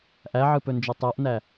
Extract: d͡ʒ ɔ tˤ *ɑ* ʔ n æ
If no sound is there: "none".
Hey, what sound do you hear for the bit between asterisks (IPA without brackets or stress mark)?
a